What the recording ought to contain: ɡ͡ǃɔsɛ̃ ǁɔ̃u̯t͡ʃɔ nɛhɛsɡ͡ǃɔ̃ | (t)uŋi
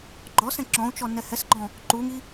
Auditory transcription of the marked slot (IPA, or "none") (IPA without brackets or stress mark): ǃ